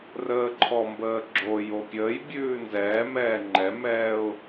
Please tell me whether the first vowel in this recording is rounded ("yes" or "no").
no